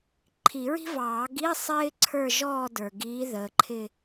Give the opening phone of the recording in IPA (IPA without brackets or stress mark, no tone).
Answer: ǃʰ